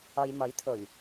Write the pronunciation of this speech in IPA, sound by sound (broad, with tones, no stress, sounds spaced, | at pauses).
ɐ˨ j m ɐ˨˥ j t̪ʰ ɵ˨˩ ɥ